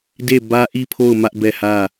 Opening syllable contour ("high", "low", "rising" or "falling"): falling